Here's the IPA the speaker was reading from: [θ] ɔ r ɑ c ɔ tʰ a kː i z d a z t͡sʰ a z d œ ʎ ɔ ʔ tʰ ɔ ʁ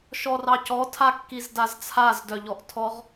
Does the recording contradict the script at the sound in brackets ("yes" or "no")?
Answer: yes